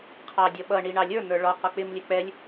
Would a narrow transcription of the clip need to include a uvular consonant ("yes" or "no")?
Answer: yes